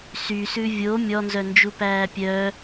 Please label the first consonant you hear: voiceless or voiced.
voiceless